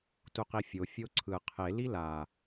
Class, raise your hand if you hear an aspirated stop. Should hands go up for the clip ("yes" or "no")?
yes